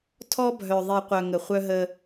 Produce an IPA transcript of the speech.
tʰ ɔ˦ bʱ œ˨ ðˤ i˨ qʷ œ˨ ŋ ə˨ χʷ œ˦ ɦ ə˦

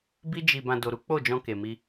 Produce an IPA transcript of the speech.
b i˦ d͡ʒ i˧ b ã˧ d o˨ ɾ u˨˦ k͡p o˦˨ d͡ʒ ɔ̃˧ k e˨ m i˧

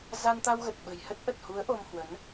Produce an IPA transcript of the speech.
z a˧ n t̪ a˧ w ɣ ə˨˩ t̚ ɓ ə̤˨˩ j h ə˦˥ t̚ ʔ ə˨˩ t̚ h u˨˦ ə̯ ʔ o˧ m h w ə˨˦ n

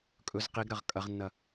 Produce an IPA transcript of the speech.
kʼ ɵ z q i ɡ ɾ ɐ ʁ kʼ ɐ ʁ nː ɐ

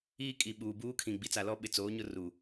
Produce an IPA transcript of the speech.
iː˦ kʼ i˨ ɓ uː˨ b uː˦ kʰ ĩ˨ ɡ͡b i˨ t͡s a˨ l ɔ˦ ɓ ɪ˨ t͡s oː˨˦ ɲ ʊ˦ r u˨

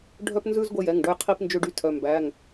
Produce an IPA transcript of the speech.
ɖʱ œ˦ p n z ʉ˦ z ɡʷ ɛ˦ j ɛ˩˧˩ ŋ ɖ ɵ˦ j qʰ i˦ p n d͡ʒ ø˦ ɖ y˦ tʰ œ˩˧˩ m b æ˩˧˩ ŋ

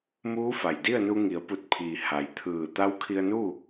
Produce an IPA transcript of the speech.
m uː˧˥ f a˩ j d i˥˨ ə̯ n u˧ ŋ i˩˧ ə̯ p u˧˩ t̚ pʰ iː˩ h a˩˧ j t̪ʰ ɯː˧˩ t̪ a˧˥ w kʰ i˧ ə̯ n uː˥˨

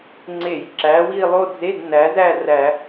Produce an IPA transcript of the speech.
ŋ͡ǀ e˧˩˧ j ǁ æ˨˥ w i˥˧ lˠ o˥˧ d͡z e˧˥˧ d n æ˨˥ z æ˥˧ r æ˧˩˧

